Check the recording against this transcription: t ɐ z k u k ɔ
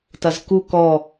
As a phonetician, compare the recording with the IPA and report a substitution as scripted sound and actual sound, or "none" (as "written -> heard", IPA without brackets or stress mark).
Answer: none